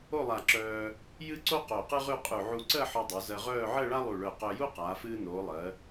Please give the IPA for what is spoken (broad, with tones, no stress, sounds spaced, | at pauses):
o˥˧ lˠ a˧˩ ǁ œː˧ | j ɨ˥ ǀ o˥ q o˧˩ q ɨ˥ ʁ ʉ˥˧ qʼ ʉ˧˩ ʕ u˧ ǀ ɜ˥˧ ħ ɔ˧ dˤ o˩˧ z ɜ˧ ʁ œː˥˧ ʕ ɜ˥˧ ɭ a˥ lˠ u˧˩ ɭ œ˧˩ q œ˧ j u˥ q aː˩˧ f ɨː˧ n oː˩˧ lˠ ɜ˩˧